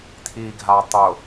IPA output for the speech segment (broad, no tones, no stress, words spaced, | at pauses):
tʰiɡʱa tˤʊ